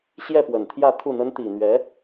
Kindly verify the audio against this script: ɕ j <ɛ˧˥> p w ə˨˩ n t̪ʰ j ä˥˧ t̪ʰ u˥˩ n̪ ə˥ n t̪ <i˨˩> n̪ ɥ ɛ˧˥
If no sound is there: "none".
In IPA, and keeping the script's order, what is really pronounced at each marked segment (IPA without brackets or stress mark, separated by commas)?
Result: ɛ˥˩, i˨˩